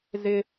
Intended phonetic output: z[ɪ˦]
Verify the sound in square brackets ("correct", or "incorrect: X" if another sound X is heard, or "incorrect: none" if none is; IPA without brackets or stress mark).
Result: correct